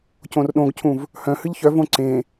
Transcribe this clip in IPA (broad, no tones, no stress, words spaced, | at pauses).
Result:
cõrɗõɡcʰũv | hœ̃hɨʎ çœvõ ǀẽ